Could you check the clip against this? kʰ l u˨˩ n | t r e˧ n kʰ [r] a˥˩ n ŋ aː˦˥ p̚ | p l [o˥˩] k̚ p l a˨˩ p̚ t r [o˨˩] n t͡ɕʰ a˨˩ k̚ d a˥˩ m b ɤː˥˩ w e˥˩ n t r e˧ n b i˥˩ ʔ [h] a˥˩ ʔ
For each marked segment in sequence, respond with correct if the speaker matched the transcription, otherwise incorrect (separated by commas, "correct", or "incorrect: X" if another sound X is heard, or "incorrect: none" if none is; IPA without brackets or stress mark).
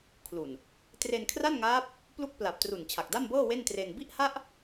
correct, incorrect: u˥˩, incorrect: u˨˩, correct